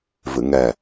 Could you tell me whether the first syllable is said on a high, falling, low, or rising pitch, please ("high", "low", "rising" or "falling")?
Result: low